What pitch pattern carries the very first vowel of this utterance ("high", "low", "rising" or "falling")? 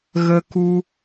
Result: high